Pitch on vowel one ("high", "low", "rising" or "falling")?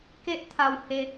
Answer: high